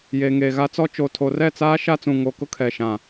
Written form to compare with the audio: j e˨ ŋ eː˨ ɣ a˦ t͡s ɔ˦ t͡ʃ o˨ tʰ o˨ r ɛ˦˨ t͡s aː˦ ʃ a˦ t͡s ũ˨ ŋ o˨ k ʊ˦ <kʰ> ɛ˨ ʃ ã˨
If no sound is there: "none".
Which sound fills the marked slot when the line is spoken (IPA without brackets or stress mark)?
kʰ